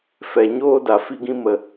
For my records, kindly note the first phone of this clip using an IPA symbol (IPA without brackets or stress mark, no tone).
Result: f